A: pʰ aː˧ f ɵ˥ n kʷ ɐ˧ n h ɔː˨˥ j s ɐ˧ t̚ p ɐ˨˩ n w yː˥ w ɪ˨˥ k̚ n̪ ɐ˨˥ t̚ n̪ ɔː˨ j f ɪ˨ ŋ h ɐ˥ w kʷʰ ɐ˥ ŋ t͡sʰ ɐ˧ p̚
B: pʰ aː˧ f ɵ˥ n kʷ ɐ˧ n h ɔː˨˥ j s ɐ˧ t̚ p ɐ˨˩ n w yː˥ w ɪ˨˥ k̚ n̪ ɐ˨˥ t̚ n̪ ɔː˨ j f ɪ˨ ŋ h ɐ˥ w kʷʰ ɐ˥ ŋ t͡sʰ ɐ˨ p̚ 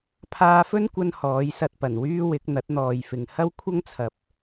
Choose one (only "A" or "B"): B